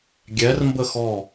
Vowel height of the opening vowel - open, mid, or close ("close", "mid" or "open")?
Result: mid